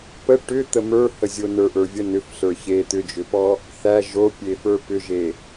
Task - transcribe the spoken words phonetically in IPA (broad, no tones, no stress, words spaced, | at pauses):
pə ʈʏt̪ə mə˞həzʲo nə˞ʔə˞vʲə nʏfɬə˞ çe t̪ʏd͡ʒʏpɔ | θæ ʒopʲefə˞ pʏʒe